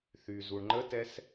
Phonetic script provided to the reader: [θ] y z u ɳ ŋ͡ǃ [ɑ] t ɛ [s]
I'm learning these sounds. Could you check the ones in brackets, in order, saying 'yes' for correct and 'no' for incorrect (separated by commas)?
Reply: yes, no, yes